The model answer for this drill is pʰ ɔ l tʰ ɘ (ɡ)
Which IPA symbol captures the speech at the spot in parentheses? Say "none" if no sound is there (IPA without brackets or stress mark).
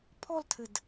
d